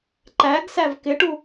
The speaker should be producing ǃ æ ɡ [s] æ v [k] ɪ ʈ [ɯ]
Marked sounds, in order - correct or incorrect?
correct, correct, incorrect: u

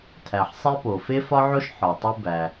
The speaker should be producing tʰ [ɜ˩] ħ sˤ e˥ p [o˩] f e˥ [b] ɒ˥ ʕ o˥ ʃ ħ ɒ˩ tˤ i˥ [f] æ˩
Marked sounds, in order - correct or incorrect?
incorrect: æ˩, correct, incorrect: f, incorrect: b

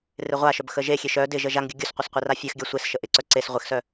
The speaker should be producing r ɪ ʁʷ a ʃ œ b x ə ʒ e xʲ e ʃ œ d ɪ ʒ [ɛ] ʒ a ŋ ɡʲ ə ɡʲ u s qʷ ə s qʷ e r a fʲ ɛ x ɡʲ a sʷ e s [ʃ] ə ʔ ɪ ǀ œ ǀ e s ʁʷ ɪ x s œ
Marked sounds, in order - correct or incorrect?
incorrect: ə, correct

